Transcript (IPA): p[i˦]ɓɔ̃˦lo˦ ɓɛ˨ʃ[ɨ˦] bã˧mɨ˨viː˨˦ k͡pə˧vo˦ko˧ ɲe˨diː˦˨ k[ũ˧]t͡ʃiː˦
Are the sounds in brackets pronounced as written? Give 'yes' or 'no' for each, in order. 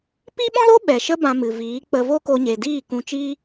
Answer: yes, no, yes

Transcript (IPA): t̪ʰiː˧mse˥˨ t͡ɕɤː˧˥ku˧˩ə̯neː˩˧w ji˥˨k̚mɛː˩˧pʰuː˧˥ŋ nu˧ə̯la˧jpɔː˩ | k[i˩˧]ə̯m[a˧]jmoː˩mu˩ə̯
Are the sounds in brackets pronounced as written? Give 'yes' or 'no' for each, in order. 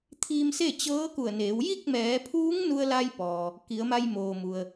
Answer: yes, yes

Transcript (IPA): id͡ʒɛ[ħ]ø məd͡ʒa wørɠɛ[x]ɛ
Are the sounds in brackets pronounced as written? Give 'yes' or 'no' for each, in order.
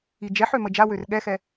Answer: yes, yes

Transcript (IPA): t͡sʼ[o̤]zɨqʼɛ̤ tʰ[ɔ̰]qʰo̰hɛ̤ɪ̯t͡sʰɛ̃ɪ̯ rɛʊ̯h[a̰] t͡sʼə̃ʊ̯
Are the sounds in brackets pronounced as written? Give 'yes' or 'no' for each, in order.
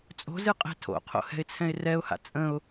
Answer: yes, no, yes

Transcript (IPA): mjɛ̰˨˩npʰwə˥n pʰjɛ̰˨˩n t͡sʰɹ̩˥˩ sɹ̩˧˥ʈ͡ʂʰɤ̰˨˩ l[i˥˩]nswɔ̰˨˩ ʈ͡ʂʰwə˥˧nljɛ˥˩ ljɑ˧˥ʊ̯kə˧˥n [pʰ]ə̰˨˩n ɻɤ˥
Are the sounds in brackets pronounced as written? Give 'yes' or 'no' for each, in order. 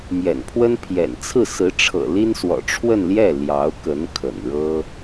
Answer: no, no

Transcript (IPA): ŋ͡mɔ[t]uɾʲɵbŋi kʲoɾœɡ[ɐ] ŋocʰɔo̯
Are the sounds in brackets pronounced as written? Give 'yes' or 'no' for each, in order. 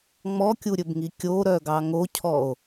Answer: no, no

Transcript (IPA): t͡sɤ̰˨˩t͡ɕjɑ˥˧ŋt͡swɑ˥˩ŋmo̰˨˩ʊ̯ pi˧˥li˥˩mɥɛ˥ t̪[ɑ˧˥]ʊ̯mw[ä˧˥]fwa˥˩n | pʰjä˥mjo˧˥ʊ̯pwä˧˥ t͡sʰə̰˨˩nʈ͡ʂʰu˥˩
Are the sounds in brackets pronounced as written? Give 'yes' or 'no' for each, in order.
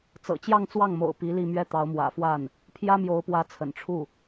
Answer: yes, no

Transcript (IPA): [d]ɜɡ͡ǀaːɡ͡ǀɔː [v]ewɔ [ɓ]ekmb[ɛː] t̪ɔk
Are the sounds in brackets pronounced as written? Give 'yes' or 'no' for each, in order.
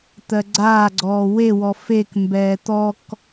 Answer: no, no, no, yes

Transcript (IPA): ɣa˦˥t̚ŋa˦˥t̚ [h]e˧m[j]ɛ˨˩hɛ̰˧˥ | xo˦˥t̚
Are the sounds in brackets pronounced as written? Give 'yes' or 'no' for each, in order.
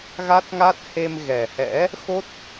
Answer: yes, no

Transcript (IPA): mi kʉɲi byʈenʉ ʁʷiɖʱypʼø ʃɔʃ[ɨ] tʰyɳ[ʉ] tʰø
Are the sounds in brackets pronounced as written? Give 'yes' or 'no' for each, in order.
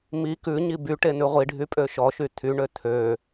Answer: no, no

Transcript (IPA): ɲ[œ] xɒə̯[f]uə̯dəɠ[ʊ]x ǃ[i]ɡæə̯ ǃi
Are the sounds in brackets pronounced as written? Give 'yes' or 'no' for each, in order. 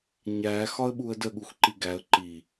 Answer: no, no, no, yes

